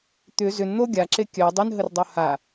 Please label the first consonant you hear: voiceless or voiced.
voiceless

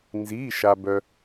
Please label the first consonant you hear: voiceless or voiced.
voiced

